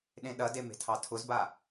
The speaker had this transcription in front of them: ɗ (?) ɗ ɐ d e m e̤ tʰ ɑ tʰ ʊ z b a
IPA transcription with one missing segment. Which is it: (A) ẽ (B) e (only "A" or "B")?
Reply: A